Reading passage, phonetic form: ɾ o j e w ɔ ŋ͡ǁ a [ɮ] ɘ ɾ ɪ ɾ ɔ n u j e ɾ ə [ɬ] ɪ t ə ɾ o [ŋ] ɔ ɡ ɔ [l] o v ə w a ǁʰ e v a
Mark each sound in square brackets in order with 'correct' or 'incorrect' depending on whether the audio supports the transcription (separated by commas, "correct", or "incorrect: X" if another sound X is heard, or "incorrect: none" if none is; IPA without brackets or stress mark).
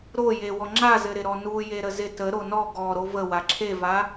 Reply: incorrect: z, incorrect: z, incorrect: n, incorrect: ɾ